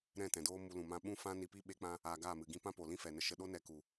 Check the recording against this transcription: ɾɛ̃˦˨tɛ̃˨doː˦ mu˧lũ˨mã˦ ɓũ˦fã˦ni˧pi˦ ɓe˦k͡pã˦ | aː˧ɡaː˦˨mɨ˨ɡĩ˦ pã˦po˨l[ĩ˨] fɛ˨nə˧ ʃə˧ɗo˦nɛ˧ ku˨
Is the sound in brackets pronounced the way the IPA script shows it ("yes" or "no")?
no